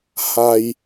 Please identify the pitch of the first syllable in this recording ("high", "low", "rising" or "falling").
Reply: high